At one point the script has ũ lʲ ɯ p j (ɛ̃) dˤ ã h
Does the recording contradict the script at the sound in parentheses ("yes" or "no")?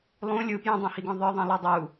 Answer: no